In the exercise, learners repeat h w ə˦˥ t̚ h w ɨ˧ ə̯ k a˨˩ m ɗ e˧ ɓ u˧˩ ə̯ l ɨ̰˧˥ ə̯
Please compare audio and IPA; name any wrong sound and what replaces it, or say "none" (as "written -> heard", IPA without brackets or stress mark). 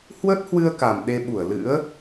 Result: none